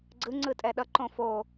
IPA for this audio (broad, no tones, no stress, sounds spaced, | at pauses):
ɡ͡ǀ ɯ ŋ͡ǀ ɯ tʼ ɛ ɗ ʌ ǃ õ f o